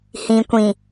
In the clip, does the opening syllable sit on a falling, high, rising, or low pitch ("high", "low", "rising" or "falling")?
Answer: low